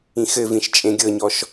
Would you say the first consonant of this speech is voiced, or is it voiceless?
voiceless